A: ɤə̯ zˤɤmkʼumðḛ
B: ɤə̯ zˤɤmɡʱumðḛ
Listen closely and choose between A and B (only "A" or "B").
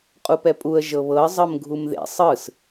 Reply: B